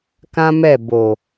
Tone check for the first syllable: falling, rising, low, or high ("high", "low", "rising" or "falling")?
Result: high